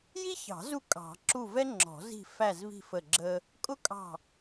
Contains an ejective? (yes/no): yes